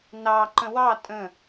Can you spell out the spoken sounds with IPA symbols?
n ɑ ǃ ə̃ w ɑ tʼ ə̃

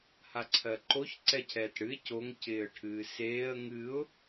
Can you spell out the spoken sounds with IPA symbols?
h a ǀʰ ɜ ǃ o ç ǀ ɛ cʰ ɛː t ɽ ɨ ɪ̯ c o ŋ c ɪː ə̯ ʈʰ ɨː s eː ə̯ ŋ ɨ ʊ̯

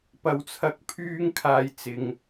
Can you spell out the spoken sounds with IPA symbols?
p ɐ˧ w t͡sʰ ɐ˧ k̚ pʰ yː˥ ŋ kʰ aː˧ j t͡s ɪ˨ ŋ

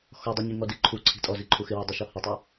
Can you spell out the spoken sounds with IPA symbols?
x ɔ dˤ u ɲ i ŋ ɔ d i ǃʰ u ǀʰ i̤ tʼ ɔ z i ǃʰ u x ɪ w ɔ dˤ u ʃ ɔ h ɪ tˤ u

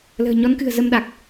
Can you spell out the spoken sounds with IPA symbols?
l ə̤ː˨˩ ɲ ɔ˨˦ n k ɨ̤˨˩ ə̯ z ə˧ m ɗ a˨˩ k̚

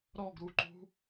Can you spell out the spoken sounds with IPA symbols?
ɾ ɔ ɡ ɾ u ǃ ṳ

